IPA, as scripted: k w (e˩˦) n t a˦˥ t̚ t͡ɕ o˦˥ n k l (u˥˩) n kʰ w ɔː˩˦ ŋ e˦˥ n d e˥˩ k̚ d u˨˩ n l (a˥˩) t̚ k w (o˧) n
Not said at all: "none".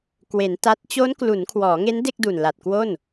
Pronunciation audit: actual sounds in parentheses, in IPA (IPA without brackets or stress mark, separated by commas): e˩˦, u˩˦, a˨˩, o˥˩